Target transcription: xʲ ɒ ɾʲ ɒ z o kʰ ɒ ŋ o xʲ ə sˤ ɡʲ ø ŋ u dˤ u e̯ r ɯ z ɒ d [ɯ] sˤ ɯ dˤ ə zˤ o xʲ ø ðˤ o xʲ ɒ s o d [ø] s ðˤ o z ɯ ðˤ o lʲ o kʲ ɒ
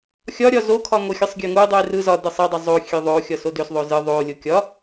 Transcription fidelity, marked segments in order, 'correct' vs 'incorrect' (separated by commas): correct, correct